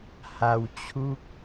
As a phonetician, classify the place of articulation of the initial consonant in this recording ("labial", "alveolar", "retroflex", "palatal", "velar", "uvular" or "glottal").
glottal